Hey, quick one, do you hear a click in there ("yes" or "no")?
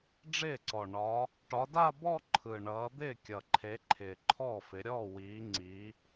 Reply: yes